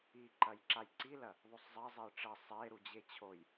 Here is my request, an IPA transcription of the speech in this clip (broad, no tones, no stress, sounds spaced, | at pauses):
i ǃ ɐ j ǁ a j ǀ i l ɐ | ðˤ o sˤ zˤ ɐ zˤ e j ʈ͡ʂ ɐ sˤ e ɾ u d͡ʑ e t͡ɕʰ o j